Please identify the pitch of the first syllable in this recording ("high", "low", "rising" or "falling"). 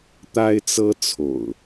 high